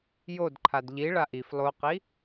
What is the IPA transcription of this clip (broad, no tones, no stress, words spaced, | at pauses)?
jodǃʰad ʎi ɭaʔif lˠoqi